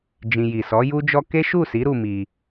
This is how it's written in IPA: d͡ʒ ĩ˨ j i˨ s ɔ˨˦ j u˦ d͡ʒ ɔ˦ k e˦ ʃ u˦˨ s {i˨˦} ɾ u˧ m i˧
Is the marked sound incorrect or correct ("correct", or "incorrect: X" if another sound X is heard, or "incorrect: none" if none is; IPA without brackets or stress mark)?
correct